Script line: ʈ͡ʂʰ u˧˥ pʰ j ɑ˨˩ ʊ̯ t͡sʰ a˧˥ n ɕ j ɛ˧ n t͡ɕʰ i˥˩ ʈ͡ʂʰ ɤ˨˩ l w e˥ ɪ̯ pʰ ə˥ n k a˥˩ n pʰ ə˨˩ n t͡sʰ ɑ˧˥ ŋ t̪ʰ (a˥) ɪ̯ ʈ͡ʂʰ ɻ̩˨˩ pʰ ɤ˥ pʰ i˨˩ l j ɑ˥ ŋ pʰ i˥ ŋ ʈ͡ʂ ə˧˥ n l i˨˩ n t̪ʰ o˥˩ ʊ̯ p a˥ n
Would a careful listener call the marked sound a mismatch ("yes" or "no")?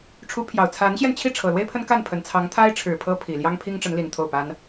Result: no